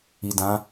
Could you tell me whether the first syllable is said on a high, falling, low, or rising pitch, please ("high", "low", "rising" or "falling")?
low